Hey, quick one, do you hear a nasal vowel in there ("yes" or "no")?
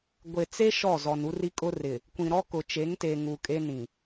yes